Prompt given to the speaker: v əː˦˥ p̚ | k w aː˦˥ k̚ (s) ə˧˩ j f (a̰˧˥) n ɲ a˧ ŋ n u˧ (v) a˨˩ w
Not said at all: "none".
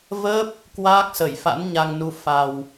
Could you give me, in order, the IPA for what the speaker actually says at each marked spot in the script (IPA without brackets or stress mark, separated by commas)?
s, a̰˧˥, f